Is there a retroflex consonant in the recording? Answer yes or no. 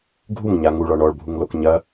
yes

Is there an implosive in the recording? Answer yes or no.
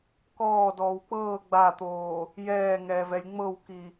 no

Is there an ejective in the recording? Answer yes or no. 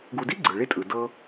yes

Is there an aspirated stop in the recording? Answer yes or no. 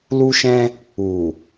no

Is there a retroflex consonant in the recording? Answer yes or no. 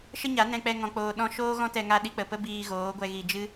no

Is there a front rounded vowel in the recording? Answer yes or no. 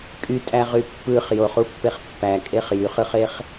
yes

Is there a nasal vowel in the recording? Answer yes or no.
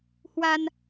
no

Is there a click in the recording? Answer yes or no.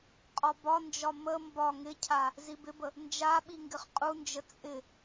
no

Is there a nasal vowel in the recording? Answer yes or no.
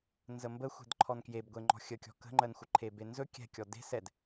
no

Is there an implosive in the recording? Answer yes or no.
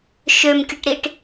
no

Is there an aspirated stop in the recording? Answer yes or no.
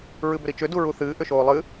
no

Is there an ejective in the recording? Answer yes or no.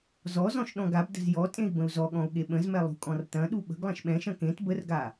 yes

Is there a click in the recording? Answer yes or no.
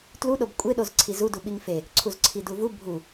yes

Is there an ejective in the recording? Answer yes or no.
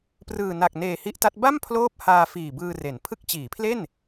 no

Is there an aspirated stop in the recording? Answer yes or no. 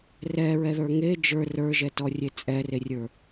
no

